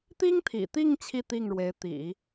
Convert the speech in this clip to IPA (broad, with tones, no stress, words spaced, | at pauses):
t̪i˥ŋt̪ʰḭ˨˩t̪i˥˧ŋ t͡ɕʰi˥˧t̪i˥˩ŋɻwe˧˥ɪ̯ t̪ḭ˨˩˦